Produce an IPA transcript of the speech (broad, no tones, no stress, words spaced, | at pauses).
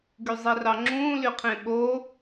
ɡyzˤirɑŋ͡ǁũː lyqʰẽɓo